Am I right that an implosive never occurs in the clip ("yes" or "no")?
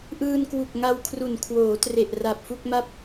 yes